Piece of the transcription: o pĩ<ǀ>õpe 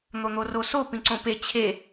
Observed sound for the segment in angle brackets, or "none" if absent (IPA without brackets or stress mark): ǀ